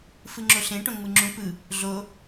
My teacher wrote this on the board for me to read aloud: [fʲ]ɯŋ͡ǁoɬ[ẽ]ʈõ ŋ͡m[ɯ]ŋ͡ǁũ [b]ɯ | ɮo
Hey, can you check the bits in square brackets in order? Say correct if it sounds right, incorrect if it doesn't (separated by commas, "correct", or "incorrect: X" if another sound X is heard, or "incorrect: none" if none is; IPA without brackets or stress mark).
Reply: incorrect: f, correct, correct, incorrect: p